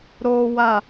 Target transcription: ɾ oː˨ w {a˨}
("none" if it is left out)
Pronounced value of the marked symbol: a˨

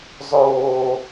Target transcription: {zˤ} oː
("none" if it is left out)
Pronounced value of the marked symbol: zˤ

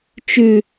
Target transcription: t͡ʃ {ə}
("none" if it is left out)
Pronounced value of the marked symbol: ʉ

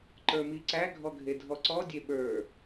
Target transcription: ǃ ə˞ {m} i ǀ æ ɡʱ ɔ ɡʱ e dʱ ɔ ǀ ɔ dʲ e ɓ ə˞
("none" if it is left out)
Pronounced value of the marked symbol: m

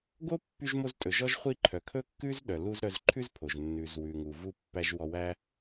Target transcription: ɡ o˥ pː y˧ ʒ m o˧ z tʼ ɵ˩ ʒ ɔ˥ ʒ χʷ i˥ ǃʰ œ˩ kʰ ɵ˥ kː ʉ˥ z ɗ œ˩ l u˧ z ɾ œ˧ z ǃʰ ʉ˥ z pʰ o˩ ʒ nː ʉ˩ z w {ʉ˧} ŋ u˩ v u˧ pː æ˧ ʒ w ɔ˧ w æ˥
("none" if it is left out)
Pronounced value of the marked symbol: ʉ˩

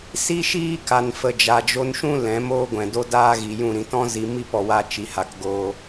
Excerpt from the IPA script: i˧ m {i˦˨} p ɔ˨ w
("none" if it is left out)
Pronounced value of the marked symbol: i˦˨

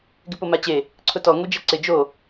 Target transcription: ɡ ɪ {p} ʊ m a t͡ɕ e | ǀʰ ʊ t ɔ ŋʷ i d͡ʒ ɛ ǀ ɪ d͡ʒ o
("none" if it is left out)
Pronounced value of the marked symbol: p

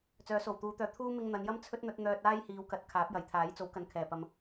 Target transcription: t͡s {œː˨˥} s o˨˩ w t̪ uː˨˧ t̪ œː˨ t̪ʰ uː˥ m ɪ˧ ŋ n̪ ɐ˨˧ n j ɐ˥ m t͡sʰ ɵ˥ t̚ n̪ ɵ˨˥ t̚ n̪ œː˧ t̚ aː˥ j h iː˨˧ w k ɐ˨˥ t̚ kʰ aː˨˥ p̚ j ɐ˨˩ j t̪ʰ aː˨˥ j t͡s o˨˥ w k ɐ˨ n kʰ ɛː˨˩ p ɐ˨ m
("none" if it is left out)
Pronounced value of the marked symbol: œː˨˥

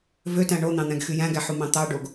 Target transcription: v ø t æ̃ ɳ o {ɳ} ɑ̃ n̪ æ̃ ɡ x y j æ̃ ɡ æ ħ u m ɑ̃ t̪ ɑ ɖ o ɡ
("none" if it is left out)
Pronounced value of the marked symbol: n̪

